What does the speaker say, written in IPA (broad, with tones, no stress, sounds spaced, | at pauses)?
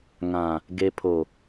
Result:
ŋ ã˨ | ɡ e˨ pʰ o˨